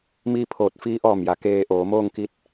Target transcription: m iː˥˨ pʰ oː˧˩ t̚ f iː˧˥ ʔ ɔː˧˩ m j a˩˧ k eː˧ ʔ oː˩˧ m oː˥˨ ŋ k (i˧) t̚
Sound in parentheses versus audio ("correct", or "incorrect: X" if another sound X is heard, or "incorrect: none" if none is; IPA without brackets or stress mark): correct